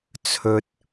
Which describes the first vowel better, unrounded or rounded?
rounded